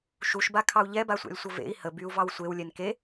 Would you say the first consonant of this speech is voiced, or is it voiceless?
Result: voiceless